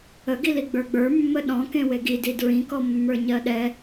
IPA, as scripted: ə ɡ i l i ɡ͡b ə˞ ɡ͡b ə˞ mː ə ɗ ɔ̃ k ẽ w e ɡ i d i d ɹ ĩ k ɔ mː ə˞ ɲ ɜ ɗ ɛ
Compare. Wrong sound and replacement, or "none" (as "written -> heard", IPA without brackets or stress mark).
none